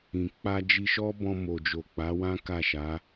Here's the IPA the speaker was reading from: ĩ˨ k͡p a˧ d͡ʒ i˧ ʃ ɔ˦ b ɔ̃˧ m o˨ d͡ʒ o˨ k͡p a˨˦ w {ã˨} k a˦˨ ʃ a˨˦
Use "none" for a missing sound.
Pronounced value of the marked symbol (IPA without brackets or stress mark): ã˦